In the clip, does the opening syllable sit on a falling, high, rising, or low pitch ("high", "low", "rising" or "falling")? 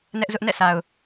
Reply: high